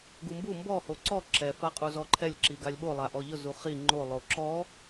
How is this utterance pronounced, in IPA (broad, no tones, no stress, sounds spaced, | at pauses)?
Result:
ɡ u m b u m b ɔ h o ǀ ɔ ǁ ɛ f a qʼ u z ɔ ǃʰ ɛ lʲ ǁ i ɡ a lʲ ɓ o lˠ a ʔ ɔ ʎ ʊ z u χ i ŋ͡ǃ o lˠ o ǁ ɔ